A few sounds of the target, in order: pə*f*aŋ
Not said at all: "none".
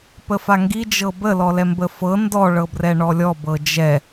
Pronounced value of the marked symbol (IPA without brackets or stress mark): f